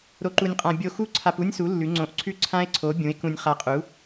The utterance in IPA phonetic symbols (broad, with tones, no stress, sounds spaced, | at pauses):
ɾ o˧ ǃ u˧ nʲ qʼ ã˧ bʲ o˧ x u˦˥ ǀʰ a˧ p u˦˥ nʲ s u˨˥ lː ʉ˨˥ ŋ͡ǀ õ˨˥ ʔ ǀʰ ʉ˦˥ ǀʰ ã˦˥ e̯ ǀʰ o˨˥ bʲ ũ˨˥ e̯ k ũ˧ nʲ χ a˧ qʼ u˨˥